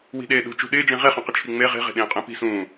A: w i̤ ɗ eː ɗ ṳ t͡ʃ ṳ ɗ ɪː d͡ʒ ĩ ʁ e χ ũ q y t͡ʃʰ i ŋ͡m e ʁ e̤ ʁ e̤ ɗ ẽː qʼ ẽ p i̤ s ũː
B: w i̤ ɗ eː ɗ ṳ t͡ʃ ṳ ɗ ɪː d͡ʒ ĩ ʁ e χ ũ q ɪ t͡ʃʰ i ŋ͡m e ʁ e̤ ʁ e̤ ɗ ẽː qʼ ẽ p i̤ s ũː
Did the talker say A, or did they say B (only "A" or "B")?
B